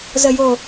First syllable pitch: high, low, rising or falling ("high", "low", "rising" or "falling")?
low